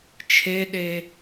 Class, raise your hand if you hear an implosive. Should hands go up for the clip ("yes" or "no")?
yes